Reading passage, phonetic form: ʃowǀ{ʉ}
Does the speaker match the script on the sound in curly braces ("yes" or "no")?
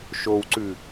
yes